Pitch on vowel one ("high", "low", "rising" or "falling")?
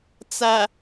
low